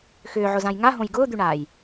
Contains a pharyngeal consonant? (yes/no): yes